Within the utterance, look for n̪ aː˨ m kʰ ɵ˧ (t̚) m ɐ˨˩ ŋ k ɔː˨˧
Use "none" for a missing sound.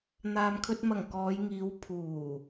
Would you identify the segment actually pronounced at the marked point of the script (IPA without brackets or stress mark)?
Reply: t̚